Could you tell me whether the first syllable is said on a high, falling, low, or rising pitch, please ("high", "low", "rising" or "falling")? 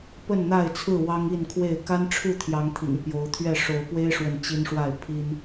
falling